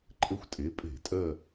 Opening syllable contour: falling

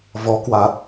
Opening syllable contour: rising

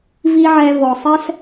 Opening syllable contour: high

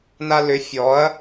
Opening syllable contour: high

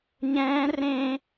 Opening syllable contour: high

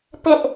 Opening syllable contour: high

